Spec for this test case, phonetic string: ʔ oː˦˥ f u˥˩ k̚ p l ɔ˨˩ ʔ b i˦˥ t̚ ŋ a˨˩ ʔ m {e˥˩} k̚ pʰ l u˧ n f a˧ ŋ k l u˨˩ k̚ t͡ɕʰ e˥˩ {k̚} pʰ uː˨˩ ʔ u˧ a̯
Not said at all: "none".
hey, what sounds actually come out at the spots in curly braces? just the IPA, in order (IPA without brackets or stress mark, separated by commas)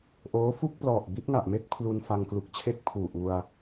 e˥˩, k̚